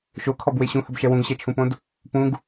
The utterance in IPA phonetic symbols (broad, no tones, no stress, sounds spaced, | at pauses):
ʃ o kʰ ɔ b w e ɕ ũ h ə b ʃ ɛ w ũ ɡ ɕ ɛ t͡ʃʰ ũ p õ d | p ũ ɡ